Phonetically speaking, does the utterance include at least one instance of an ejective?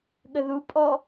yes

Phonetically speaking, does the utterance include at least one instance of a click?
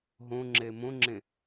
yes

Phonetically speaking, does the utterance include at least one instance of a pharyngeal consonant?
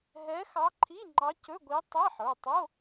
yes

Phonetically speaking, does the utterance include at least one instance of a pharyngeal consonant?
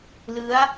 no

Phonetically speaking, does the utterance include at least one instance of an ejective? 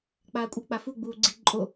yes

